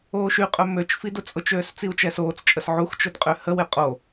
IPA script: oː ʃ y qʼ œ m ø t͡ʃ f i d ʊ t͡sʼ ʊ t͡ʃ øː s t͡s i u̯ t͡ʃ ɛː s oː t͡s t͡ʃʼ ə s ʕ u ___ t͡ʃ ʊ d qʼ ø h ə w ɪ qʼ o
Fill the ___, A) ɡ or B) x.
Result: B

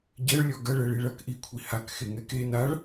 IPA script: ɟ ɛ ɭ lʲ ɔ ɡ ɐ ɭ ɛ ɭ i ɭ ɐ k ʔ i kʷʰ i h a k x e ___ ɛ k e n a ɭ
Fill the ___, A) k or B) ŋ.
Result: B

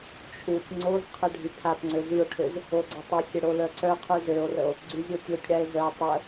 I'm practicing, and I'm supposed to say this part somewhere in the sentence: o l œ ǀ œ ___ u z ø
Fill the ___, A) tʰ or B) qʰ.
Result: B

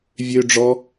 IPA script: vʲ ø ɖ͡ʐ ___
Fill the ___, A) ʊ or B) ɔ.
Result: B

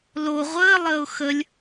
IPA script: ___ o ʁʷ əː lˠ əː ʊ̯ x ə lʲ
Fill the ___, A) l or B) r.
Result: A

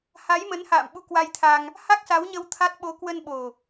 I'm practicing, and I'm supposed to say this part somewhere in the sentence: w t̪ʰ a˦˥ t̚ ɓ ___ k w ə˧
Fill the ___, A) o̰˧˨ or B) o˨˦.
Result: B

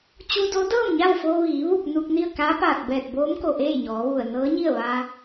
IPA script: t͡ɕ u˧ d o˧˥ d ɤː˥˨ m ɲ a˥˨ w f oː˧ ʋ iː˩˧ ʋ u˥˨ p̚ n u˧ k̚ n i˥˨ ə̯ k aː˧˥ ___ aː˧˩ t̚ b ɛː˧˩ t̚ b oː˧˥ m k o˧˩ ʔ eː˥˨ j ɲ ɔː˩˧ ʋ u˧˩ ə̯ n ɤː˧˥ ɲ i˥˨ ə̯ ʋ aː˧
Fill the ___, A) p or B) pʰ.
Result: A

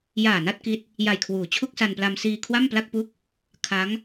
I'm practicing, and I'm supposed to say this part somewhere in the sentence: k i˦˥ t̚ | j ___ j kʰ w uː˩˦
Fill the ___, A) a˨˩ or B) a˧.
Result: A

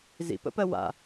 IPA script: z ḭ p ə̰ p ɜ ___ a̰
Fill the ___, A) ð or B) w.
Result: B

